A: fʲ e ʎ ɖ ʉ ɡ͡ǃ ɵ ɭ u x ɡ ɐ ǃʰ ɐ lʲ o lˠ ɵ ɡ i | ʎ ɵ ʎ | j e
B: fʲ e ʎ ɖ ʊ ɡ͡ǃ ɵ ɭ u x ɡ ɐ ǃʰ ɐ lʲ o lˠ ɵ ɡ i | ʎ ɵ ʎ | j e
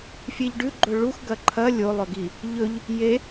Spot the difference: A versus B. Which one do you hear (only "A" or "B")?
A